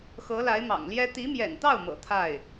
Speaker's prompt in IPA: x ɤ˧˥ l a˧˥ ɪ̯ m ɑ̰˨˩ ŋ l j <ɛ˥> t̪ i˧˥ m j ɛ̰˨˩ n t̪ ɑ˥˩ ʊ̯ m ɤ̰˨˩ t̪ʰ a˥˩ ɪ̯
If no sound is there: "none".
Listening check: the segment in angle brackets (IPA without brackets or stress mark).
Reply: ɛ˥